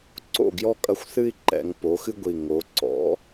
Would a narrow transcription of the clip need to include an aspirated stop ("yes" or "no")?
no